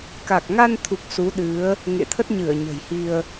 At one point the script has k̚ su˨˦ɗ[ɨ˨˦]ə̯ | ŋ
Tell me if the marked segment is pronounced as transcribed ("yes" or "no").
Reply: yes